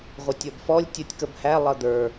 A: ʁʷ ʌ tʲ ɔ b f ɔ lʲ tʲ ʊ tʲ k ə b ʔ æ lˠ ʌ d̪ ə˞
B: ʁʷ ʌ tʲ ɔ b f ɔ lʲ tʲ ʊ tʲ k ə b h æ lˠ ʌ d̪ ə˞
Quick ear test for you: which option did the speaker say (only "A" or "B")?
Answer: B